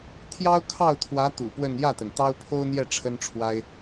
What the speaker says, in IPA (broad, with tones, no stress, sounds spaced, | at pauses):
t̪ʰ j ɑ˥ ʊ̯ kʰ ɑ˥˩ ʊ̯ t̪ʰ w ä˧˥ t̪ ṵ˨˩ p w ə˥˧ n j ä˥˩ t̪ ə˩ n t̪ ɑ˥ ʊ̯ pʰ o˥ ʊ̯ n̪ j ɛ˥˩ ʈ͡ʂʰ ə˥ n ʈ͡ʂʰ w a˥ ɪ̯